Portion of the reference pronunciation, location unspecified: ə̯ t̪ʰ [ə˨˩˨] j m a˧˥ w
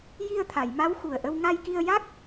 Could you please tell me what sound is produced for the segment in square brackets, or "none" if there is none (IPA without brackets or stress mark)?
a˨˩˨